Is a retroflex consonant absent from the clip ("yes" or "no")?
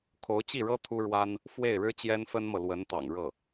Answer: no